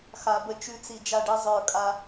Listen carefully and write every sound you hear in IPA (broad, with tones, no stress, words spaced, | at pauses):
xa˨bə˧t͡ʃʉ˧t͡si˨ d͡ʒa˦˨ɖi˦ zˤə˞˧ kʼa˦